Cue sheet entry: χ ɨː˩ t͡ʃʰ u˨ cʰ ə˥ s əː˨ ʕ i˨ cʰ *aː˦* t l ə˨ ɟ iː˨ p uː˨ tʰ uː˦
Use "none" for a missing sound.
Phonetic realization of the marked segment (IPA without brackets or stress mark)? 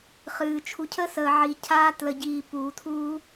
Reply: aː˦